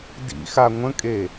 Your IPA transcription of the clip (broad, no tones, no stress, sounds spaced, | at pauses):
d ḭ x a ŋʷ ə̃ kʼ e